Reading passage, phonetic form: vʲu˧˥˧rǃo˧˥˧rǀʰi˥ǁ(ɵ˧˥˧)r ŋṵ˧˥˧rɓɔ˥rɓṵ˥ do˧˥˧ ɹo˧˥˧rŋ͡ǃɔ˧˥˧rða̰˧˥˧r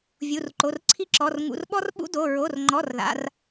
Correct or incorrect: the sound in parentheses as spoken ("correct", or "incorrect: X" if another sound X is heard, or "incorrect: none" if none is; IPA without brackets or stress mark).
incorrect: ɔ˧˥˧